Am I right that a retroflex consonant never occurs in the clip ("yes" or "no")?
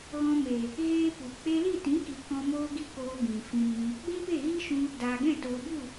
yes